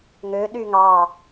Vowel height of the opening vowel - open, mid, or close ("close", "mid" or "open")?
mid